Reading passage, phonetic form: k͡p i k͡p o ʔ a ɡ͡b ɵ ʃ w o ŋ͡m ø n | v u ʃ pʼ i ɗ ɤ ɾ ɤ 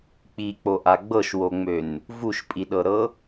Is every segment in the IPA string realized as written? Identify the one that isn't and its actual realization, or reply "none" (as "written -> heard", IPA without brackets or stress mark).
ɵ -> ɤ